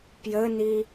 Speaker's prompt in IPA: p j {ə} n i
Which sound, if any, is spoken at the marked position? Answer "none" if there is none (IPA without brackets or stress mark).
ə